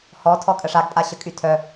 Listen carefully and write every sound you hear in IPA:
hɔtʰɔ kʼəʂaɡpʼa ɕəkʼytʰœ

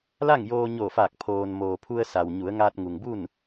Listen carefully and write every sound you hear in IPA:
la˥˨ŋjoː˧ɲo˧˩faː˧˩k̚ pʰoː˩nmoː˩ pʰu˧ə̯sa˩wɲu˩˧ə̯ ŋaː˧t̚ŋu˩ŋbu˥˨n

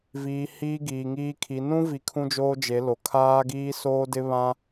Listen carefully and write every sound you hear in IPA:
viː˨ hiː˦ɡiː˨ŋiː˦kʰi˨˦ nũ˦vi˨ kʰũ˦d͡ʒoː˦d͡ʒe˨˦lo˨ kʰaː˦ɡiː˦soː˦dɪ˦ βã˦

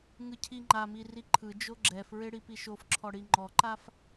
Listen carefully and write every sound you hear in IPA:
ŋɯcʰiŋ͡ǃami riǃʰɯd͡ʒo ɡ͡ǁɛfɹe ɽipiʃofǁʰɔ ɽiŋ͡ǃɔǃaf

